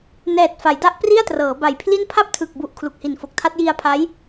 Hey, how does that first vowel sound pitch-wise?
low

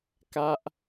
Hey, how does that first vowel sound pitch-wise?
high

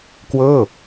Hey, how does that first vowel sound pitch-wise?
falling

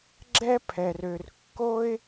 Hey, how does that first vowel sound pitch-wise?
high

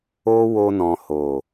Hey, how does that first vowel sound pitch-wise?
high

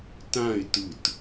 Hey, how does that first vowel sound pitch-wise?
falling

